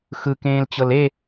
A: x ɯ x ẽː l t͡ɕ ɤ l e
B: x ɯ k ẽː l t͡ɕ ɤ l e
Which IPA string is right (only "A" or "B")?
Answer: B